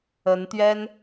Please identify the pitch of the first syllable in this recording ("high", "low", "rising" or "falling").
rising